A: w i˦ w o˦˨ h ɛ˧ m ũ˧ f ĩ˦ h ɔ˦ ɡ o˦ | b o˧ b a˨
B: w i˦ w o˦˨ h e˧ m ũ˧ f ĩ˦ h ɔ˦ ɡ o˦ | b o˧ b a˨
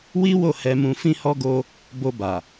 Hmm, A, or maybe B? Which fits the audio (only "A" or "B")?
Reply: A